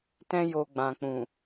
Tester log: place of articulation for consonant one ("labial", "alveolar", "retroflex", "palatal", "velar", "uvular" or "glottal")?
alveolar